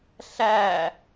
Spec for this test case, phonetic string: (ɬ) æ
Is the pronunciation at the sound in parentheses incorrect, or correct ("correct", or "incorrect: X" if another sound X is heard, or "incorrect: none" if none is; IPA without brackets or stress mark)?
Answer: correct